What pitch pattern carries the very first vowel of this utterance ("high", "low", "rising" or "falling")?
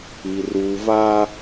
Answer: low